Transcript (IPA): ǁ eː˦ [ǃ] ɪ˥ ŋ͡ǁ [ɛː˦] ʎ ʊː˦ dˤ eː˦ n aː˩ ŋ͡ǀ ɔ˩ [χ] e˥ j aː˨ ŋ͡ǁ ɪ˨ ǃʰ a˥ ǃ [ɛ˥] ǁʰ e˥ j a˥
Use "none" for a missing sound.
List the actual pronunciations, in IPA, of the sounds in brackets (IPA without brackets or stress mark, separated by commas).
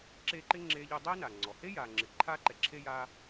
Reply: ǃ, eː˦, h, ɛ˨